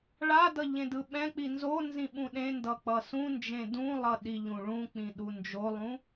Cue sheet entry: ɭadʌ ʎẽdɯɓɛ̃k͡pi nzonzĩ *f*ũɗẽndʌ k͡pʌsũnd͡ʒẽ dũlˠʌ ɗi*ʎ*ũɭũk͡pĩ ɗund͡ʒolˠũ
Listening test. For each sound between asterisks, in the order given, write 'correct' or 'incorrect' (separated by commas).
incorrect, correct